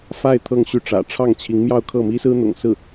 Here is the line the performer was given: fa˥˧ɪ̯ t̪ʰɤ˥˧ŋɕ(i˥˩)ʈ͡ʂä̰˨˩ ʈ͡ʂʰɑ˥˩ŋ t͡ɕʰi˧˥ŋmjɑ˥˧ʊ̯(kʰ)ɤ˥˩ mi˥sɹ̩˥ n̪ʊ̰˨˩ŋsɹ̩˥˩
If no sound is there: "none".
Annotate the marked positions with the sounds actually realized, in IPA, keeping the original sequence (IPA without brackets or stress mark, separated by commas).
y˥˩, kʰ